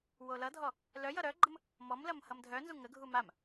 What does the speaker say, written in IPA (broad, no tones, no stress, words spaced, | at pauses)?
wolʌdʱɔ | lœ jʌɾœɡ͡ǃəm | mɔmlɐm hʌmdʱœnzu ŋəɡʱu mam